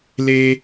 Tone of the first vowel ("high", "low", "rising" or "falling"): high